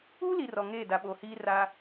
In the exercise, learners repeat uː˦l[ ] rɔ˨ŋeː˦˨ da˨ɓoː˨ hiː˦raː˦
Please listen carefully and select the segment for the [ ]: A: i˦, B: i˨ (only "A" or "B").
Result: B